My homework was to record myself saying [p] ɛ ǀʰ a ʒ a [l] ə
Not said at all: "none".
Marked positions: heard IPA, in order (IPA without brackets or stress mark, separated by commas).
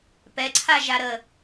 p, ɾ